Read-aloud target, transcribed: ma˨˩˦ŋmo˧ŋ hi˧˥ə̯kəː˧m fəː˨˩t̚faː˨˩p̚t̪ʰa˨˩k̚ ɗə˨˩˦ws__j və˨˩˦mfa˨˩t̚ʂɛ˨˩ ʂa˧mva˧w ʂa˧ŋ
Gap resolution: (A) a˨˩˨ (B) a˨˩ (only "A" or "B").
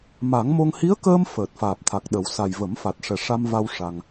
B